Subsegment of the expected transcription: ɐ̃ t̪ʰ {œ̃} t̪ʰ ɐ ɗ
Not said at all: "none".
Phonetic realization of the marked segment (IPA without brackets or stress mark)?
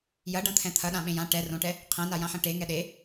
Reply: ɛ̃